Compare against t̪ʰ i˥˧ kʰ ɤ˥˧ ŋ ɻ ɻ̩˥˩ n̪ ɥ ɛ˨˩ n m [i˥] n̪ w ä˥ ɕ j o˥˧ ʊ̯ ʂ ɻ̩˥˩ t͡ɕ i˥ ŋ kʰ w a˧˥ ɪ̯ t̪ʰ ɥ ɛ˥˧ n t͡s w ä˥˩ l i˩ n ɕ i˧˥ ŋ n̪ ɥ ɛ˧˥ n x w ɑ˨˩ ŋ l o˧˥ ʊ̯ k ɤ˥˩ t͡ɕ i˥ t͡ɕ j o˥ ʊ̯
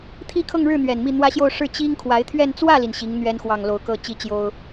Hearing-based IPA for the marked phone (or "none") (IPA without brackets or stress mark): i˥˩